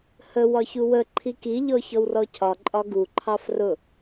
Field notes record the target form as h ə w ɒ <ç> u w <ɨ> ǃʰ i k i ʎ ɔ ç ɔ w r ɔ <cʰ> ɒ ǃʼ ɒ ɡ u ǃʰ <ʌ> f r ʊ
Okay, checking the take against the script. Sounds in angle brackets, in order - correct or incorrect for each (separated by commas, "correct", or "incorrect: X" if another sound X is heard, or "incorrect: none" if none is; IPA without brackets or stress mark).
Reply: correct, incorrect: ə, correct, incorrect: ɑ